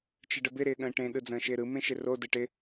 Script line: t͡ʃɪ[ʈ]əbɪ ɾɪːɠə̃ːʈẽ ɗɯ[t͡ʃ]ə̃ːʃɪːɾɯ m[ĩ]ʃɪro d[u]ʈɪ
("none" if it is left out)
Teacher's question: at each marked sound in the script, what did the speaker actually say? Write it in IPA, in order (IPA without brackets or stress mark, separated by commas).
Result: ɖ, d͡z, ẽ, ɯ